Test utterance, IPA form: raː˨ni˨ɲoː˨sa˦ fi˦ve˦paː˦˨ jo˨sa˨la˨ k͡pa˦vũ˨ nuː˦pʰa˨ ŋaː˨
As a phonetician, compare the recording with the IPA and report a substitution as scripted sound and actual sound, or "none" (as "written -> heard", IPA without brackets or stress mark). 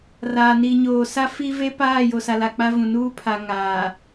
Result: none